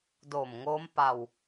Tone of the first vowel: low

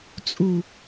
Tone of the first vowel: low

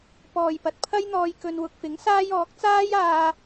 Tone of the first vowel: low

